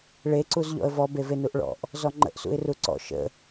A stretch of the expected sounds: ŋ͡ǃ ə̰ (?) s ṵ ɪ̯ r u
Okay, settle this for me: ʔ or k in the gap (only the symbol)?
ʔ